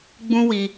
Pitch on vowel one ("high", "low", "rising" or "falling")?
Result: high